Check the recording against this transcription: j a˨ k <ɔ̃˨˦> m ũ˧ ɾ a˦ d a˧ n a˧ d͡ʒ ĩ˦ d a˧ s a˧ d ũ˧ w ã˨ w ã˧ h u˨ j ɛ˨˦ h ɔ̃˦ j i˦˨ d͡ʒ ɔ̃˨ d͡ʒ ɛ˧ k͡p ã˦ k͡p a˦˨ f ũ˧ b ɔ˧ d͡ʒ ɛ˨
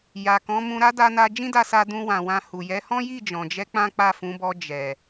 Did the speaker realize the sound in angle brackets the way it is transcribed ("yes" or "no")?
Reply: yes